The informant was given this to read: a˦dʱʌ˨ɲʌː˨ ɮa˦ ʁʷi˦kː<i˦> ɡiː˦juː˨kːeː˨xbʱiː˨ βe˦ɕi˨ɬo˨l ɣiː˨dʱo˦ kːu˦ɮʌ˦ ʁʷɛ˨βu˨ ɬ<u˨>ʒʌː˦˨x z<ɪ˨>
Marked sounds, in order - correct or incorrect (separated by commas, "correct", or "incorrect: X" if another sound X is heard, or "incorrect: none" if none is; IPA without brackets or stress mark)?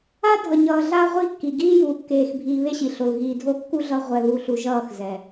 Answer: incorrect: i˨, correct, incorrect: ɛ˨